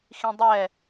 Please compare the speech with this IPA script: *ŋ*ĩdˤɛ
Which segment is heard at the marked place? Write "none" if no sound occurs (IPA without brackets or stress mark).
x